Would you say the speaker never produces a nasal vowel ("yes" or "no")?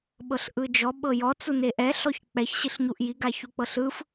yes